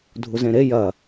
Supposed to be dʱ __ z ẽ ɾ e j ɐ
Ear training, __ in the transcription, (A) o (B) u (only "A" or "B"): B